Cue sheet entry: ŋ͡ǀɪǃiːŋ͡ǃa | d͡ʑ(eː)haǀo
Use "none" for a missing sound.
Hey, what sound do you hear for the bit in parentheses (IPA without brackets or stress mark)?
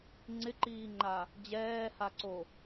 ɛː